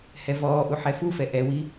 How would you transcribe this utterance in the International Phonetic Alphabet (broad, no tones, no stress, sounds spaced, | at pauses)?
h ɛ v ɔː ʔ u ħ ɛ f u f ɛ ʔ ɛ w i